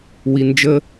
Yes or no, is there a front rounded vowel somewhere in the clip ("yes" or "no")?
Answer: no